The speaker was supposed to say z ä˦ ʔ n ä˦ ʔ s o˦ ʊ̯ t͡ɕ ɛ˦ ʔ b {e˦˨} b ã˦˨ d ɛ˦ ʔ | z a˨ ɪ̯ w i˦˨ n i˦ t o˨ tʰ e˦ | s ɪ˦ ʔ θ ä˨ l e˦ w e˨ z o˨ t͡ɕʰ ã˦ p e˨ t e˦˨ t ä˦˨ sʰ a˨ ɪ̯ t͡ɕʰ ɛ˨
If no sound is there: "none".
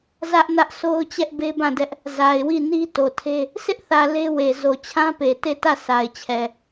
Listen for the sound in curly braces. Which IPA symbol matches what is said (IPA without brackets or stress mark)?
e˦